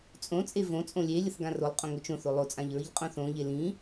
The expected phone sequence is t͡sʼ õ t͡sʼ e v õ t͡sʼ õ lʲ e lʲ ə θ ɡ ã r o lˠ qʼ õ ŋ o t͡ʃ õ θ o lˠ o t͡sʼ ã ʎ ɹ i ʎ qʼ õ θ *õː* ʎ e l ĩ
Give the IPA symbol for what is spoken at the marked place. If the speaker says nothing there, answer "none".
õ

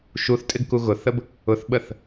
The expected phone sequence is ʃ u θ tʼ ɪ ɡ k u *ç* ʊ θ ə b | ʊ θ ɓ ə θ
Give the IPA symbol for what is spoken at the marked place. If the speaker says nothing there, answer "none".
ɣ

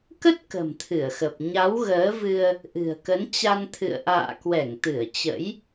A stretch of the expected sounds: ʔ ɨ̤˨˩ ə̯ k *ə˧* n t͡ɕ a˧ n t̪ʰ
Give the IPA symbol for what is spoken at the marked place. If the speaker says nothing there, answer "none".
ə˨˦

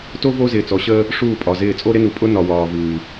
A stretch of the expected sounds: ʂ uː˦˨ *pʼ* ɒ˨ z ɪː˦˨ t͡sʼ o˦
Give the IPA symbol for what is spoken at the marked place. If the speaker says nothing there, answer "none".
pʼ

